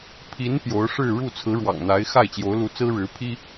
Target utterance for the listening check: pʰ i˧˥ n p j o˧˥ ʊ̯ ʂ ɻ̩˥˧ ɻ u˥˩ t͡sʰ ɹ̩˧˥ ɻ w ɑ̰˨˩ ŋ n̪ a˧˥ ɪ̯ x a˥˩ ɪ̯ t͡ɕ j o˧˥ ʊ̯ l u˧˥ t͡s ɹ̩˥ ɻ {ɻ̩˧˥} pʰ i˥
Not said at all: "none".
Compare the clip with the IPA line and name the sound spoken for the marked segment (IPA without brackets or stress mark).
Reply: ɻ̩˧˥